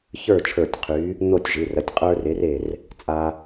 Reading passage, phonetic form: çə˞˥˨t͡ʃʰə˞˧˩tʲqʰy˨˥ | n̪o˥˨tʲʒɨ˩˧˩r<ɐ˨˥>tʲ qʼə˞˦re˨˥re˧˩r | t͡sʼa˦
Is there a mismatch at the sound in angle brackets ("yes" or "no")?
no